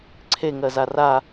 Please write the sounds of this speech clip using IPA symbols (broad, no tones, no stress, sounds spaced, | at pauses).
ǀʰ e ŋ ɜ z a r a